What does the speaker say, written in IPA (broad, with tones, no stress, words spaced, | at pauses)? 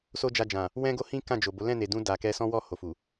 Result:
so˦d͡ʒa˧d͡ʒã˨ | wɛ̃˦ɡo˦hĩ˦ kã˦˨d͡ʒo˨bo˨˦ lɛ̃˦˨ne˨dũ˧ da˨kɛ˧sɔ̃˦ wɔ˦˨ ho˨fu˨